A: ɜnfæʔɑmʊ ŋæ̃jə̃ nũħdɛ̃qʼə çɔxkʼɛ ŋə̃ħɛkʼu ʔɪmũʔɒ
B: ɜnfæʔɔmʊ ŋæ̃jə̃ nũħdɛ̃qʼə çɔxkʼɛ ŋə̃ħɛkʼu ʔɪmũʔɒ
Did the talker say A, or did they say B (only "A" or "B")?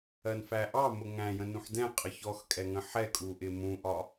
A